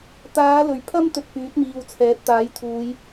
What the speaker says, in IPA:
t̪ aː˨˧ l ɵ˨˩ ɥ pʰ ɐ˥ m t̪ ɵ˧ t̚ p yː˨˥ t̚ m iː˨ w t͡sʰ ɛː˨˥ t̚ t̪ aː˨˥ j t̪ʰ uː˨˧ j

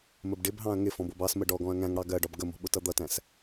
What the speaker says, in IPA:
m ə b ɖ ɪ b ɦ ɑ̃ ɐ̯ ŋ ɪ f ɔ̃ b ʊ b ɑ s m ə ɖ ɔ ɡ ɔ̃ ɐ̯ ŋ æ̃ ŋ ɽ ɑ ɡ ɜ ɖ ɒ b ɡ ə m ɔ̤ ɓ ʊ t ʌ d̪ ʌ t æ̃ s

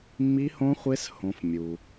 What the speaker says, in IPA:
mː i˦ h õ˦ χʷ e˦ s h õ˦ f mʲ u˦

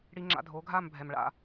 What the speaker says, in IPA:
ɽ i˧ ŋ͡ǁ a̰˧ dʱ oː˩˥ ɡʱ aː˥˩ m bʱ ɛ˩ m ɭ a̰˩

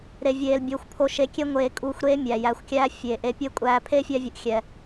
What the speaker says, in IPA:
ɾ e˧ vʲ eː˧ l bʲ oː˧ xʷ pʰ o˧ ʃ e˧ kʲ e˦ ŋʷ eː˧ kʼ uː˧ xʷ ɾ eː˦ mʲ æ˨ j æ˨ xʷ kʲ æː˧ fʲ eː˨ ʔ e˦ pʲ eː˦ kʷʼ æː˧ pʰ e˦ fʲ æ˧ vʲ u˨ ʔ xʲ ɛ˨

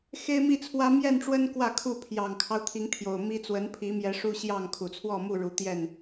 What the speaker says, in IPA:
x e˦ ɪ̯ m i˥˨ t͡sʰ w ä˦ m j ɛ˥˨ n ʈ͡ʂ w ə˦ n k w ä˥˨ kʰ u˥˨ pʰ j ɑ˨˩ ŋ kʰ ɑ˦ ʊ̯ t̪ʰ i˨˦ ŋ t̪ʰ j o˨˩ ʊ̯ m i˦ t͡s w ə˨˦ n pʰ i˨˦ m j ɛ˨˦ ʂ u˦ ɕ j ɑ˥˨ ŋ kʰ u˨˩ t͡sʰ w ɔ˥˨ m u˥˨ ɻ u˨˦ t̪ j ɛ˥˨ n

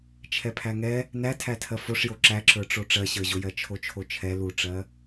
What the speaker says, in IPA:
t͡ʃʰ ɛ pʰ æ ŋ ɛ | n æ tʰ æ tʰ ɜ f o ʂ j o ǁ æ ǁ ə˞ ʈ͡ʂ o ʈ͡ʂ ɜ ɕ ə˞ ʑ o j ɜ t͡ʃʰ o t͡ʃʰ o t͡ʃʰ ɛ l u ʈ͡ʂ ɜ

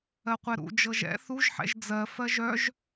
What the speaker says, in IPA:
ɜ qʷ ɛ ɾ ṵ d͡ʒ ɤ ʒ ɛ̰ θ u ʒ ħ ɛ̰ ʒ d͡z ɜ f ɜ ʒ œ ʒ

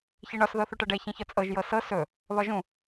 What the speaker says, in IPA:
ç i ɳ ɒ s ð ɤ θ u ʈ ɤ ɖ ɛ ç ĩ ç ɒ t͡sʼ ɤ ʒ j ɤ s ɤ s ɵ | β ɒ ʒ ũ

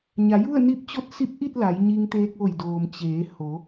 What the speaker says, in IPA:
ɲ a˩˧ j u˥˨ ə̯ n i˧˥ p̚ t͡ɕ o˧˥ t̚ s i˧˥ p̚ ʔ i˥˨ t̚ l a˩˧ j ɲ i˧ ŋ t̪ eː˧ k̚ ʋ o˧˩ j d oː˩ m t͡ɕ eː˩˧ h o˩˧

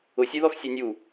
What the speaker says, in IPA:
ʊ sʲ e ð ɔ x sʲ e nʲ u

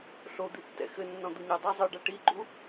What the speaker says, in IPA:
ɬ o d̪ i tː ɛ̰ x ɘ nː ɔ̃ d̪ u ɲ ɛ dˤ ɐ zˤ ɨ ɖ a ʈ i ɡ͡ǃ u

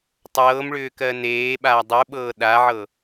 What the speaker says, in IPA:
tˤ ɤː m ɭ ʏː k ɜ n eː ɓ aː dˤ u ɓ ɤː ɗ a ʕ ɤ

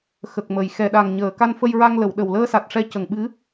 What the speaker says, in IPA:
x ə˨˩ k̚ m ə˨˩ j x ɛ˨˩ ɗ a˨˩ ŋ ɲ əː˨˩˨ k a˧ n f ə˧ j ɹ a˧ ŋ l ə˨˩˨ w ɗ ə˨˩ w l əː˧ s a˨˩ t̚ ʂ ɛ˧˥ c ə˨˩ ŋ ɓ ɨ˧˥

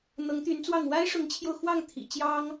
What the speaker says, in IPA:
n̪ ɤ˧˥ ŋ t̪ y˧˥ n t͡s w ɑ˥˩ ŋ w a˥ ɪ̯ ʂ ʊ˧˥ ŋ t͡ɕʰ j o˧ ʊ̯ x w ɑ˥˩ ŋ t̪ʰ ḭ˨˩ t͡ɕ j ɑ˥ ŋ

